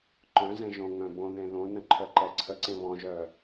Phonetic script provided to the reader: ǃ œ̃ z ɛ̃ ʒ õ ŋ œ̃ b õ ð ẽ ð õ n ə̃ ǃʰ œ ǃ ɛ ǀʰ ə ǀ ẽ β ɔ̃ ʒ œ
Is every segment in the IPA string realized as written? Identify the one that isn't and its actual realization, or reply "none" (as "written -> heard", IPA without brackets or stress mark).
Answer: none